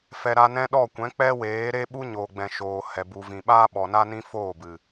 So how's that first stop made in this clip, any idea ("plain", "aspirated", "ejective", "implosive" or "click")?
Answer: implosive